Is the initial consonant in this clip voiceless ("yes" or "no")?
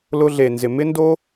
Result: no